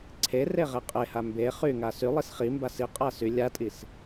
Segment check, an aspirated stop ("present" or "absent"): present